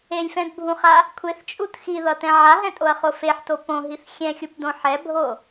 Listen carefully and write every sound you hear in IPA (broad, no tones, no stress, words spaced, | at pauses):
elʲfɛ̃dbʱũχa | kʷʰeθt͡ʃʼut xiðʌtɛ̃ ʕaɦɛ̃tʼoɐ̯χo feħto põɦiθ xʲɛ̃xʲupdõ ħɛbʱo